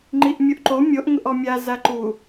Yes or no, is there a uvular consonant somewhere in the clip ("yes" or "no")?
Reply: no